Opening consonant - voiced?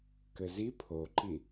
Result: no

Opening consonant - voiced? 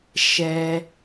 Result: no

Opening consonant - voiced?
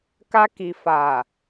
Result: no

